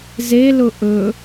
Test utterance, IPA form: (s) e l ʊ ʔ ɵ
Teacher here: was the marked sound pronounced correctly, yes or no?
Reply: no